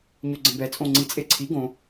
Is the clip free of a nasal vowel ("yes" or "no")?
no